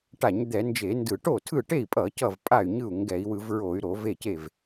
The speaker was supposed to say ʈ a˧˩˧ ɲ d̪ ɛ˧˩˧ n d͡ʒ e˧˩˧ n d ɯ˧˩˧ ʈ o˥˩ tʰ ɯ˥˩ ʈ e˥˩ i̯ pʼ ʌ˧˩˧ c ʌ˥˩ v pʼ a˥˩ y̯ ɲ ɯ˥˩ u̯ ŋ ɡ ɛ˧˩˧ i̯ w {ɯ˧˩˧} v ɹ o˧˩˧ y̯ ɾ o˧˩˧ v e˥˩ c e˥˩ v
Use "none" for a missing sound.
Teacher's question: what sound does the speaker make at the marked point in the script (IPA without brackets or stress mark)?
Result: ɯ˧˩˧